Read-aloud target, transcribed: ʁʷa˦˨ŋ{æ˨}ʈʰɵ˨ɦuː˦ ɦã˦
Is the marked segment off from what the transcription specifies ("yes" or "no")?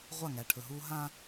no